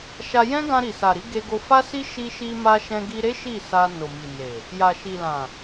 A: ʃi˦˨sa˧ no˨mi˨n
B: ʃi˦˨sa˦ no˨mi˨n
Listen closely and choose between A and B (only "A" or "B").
A